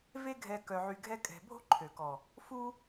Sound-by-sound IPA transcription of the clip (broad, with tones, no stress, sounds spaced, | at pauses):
v e˦ ɡʱ ɛ˧ k œ˧ ʕ y˧ ɡʱ ɛ˦ kʼ ɛ̤˧ bʱ o̤˦ ǃʰ ø˨ k ɔ˨ | f u˦